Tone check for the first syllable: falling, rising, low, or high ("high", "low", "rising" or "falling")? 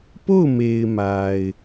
falling